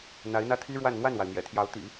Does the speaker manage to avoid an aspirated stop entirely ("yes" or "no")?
no